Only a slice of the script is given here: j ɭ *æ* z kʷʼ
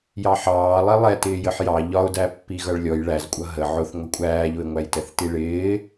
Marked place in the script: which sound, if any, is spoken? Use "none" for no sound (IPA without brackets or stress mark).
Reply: æ